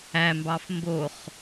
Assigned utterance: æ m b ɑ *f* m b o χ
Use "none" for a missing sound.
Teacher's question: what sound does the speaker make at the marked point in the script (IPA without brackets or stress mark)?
f